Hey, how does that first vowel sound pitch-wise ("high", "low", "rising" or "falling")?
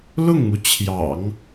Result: falling